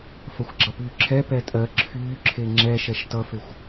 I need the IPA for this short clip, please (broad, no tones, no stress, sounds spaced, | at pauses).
f ɐ xʷ ɡ͡ǁ ʌ p yː ǁʰ ɛ p ɛ tʼ ɜ ǁʰ yː ǁʰ e ŋ͡ǁ ɛ ʃ ɛ ʃ t ʌ f e xʷ